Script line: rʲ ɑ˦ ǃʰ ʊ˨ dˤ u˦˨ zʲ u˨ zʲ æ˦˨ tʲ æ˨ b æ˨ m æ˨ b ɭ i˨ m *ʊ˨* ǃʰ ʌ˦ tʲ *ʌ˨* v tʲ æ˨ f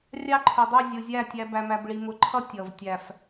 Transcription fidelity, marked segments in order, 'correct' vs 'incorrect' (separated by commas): correct, correct